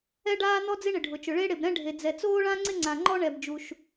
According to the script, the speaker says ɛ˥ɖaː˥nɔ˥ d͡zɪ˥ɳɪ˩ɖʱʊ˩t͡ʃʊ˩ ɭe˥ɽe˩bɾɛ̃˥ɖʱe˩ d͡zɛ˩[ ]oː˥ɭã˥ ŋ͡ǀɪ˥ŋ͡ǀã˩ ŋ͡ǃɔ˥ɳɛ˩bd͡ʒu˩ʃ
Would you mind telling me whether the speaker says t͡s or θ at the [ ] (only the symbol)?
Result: t͡s